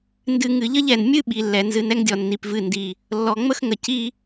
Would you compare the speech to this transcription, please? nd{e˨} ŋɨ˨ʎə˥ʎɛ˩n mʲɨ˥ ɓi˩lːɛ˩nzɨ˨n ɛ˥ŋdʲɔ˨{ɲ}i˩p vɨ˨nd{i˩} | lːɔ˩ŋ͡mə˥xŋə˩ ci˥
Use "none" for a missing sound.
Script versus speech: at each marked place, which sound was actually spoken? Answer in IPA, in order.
ɨ˨, nː, i˩

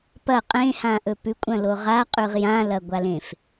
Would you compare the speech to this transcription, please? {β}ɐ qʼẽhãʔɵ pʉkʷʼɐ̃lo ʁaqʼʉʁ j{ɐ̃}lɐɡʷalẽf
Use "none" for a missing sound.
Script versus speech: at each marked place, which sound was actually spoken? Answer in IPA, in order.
p, ã

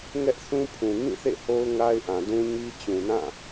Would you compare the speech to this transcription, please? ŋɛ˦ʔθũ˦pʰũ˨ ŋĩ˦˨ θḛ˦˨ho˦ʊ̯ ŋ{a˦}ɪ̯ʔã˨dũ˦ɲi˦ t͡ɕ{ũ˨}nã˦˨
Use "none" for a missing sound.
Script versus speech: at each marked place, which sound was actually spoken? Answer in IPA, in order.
a˦, ũ˨

